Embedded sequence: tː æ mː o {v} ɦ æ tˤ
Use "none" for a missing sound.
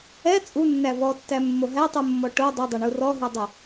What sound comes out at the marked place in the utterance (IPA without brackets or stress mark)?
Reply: none